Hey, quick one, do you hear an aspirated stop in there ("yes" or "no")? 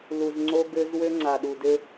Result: no